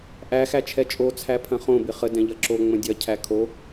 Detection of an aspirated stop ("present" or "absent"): present